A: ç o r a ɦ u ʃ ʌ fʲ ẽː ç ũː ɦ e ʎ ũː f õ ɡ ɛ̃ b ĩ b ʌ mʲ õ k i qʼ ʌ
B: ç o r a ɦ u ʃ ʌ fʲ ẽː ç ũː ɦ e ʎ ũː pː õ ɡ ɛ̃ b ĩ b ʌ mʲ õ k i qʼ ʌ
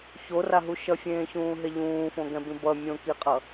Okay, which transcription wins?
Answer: A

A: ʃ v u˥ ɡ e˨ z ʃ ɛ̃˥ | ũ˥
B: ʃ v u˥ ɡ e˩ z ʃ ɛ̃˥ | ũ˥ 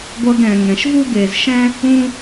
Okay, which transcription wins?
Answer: A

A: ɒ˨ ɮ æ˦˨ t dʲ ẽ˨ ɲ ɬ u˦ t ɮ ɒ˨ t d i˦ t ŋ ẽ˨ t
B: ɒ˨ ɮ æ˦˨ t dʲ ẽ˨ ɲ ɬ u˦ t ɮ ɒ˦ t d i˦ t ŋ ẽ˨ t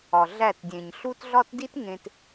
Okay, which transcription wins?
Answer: B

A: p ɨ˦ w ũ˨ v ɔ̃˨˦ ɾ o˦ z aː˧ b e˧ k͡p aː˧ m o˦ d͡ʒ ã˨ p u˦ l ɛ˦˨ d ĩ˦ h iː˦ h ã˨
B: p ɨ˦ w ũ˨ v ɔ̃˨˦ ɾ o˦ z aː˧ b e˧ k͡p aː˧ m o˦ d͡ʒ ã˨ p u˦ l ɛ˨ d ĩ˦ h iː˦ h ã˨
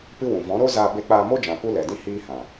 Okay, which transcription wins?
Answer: B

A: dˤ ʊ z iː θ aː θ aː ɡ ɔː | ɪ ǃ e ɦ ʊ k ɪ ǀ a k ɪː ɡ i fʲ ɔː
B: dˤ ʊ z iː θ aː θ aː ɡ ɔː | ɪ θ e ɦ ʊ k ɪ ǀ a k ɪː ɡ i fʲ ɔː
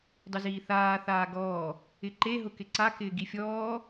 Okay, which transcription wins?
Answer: A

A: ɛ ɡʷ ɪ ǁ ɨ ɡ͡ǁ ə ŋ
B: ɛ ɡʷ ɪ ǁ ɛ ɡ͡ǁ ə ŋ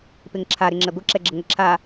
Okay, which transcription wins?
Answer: B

